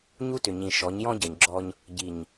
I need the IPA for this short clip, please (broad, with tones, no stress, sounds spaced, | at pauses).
ɲ u˦ t ʏ˨ ɲ ĩ˨ ʃ ɔ˨˦ ɲ j ɔ̃˦ ɟ ʌ˨ ɲ ɡ͡ǁ ɔ˦ ɲ | ɟ i˨ ɲ